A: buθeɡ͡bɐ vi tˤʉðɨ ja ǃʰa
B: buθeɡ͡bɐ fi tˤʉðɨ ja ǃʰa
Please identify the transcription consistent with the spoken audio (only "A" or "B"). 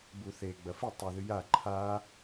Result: B